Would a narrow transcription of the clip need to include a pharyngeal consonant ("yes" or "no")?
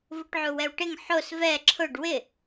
yes